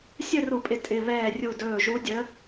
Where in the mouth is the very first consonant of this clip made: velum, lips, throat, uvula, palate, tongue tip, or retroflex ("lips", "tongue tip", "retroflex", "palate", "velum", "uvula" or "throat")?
tongue tip